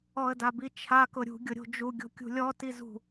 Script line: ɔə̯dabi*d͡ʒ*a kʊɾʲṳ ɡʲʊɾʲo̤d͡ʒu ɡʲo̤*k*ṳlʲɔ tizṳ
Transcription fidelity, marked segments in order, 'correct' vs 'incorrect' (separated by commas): incorrect, incorrect